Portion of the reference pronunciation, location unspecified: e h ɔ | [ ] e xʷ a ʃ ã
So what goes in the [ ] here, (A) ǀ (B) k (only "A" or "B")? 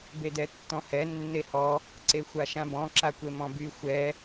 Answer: A